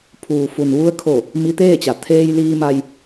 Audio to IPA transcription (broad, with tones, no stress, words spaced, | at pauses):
pʰuː˩fu˩nʋu˧ə̯kʰo˧˩ | mi˧t̪eː˥˨t͡ɕa˩ t̪ʰeː˧jliː˧ma˧j